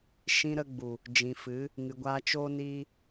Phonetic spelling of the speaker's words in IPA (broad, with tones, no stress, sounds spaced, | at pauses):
ʃ ĩ˧ ɾ ə˧ ɡ͡b u˨ | d͡ʒ ĩ˨ f ɨ˨˦ | ŋ ɨ˨ ɡʷ a˧ t͡ʃ oː˦ n iː˦